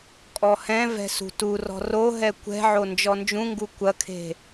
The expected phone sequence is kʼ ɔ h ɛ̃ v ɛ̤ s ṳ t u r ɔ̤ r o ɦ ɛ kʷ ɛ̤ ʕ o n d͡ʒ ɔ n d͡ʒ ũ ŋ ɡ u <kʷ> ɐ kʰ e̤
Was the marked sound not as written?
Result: no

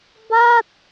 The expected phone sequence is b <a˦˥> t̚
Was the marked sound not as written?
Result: yes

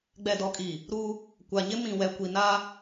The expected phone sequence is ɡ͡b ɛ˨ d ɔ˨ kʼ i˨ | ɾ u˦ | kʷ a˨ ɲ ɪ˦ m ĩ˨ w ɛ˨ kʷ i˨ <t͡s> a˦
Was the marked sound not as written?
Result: yes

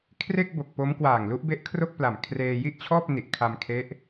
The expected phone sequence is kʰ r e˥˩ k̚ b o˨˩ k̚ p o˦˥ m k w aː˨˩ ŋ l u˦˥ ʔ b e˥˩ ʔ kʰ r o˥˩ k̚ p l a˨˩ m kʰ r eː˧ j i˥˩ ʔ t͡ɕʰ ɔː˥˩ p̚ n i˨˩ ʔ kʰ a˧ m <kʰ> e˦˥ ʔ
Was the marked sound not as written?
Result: no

